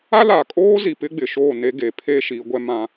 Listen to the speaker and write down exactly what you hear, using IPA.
a˦ l a˨ kʼ oː˦ z i˨ p ɪ˦ ɡ͡b ɪ˨ ʃ oː˦˨ n e˦ ɡ e˨ pʰ e˦ ʃ i˨˦ ɡʷ ɛ˦ m ã˦

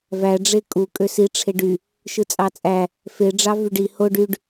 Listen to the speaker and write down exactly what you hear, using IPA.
v æ ɖ͡ʐ e kʼ u kʼ ø s i ʈ͡ʂʰ e ɖ y | ʃ ɯ t͡sʼ ɑ t͡sʼ æ | f e ɖ͡ʐ ɑ v y ɖ i h o ɖ y ɖ

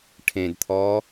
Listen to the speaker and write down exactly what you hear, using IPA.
ʈʰ ẽ d t̪ʰ ɔː

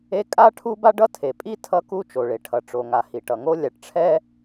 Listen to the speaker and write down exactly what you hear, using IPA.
e˥ kʼ a˥ ʈʰ u˥ b a˥ ɖ ʌ˥ tʰ e˩ pʼ i˥ tʰ ʌ˥ k u˥ t͡ʃ o˩ ɭ e˩ ʈʰ ʌ˩ ʈ͡ʂ o˩ ŋ a˩ h i˩ ʈ ʌ˩ ŋ o˥ lʲ a˩ ʈ ʈ͡ʂʰ ɛ˥

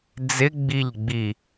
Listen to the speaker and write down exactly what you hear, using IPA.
d͡z ɪ ɡ͡b i ʎ ɡ͡b i

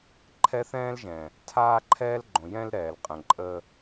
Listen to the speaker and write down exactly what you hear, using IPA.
ǃʰ ɛ˦ θ ɛ̃ː˦ l ʒ ɛ̃˨ | tʰ aː˦ ǃʰ ɛː˦ l ɡ͡ǃ õ˨ j ɛ̃˦ l ɾ ɛː˨ l qʼ ə̃˨ ǃʼ ə˦

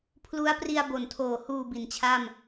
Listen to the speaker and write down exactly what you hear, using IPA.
pʰ l u˦˥ a̯ p r i˧ a̯ b o˨˩ n tʰ oː˨˩ h uː˨˩ b i˩˦ n t͡ɕʰ a˥˩ m

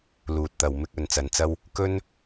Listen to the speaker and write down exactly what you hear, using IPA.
l uː˨ t̚ t̪ ɐ˨ w m ɪ˧ k̚ ɵ˧ n t͡s ɐ˧ n t͡s ɐ˥ w | k ɵ˥ n

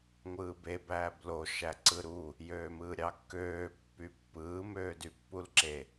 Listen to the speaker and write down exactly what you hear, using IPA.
ŋʷ ɯː b e b æː b l o ʃ æ ǀ ɯ ɾ u | j øː m ɯː ɾʲ ɑ kː øː pː y pː ɯː m øː d y pː u l ǁ e

